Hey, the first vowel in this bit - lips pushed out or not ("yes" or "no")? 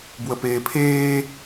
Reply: no